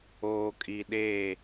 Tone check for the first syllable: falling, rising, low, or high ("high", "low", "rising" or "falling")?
low